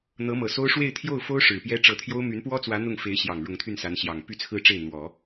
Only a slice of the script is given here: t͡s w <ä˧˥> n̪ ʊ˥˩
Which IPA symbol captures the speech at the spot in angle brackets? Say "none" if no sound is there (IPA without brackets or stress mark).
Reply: ä˧˥